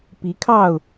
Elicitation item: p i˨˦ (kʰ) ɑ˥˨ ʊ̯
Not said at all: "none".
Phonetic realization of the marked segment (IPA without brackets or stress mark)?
kʰ